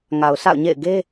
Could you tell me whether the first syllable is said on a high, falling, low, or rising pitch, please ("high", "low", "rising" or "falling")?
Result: low